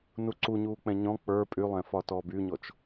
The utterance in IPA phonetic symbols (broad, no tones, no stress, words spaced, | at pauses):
nuǀuɲuːk͡pɛ̃ ɲɔ̃ k͡pə˞ pʼylˠɛ̃fɒ tɔbyɲɔt͡ʃ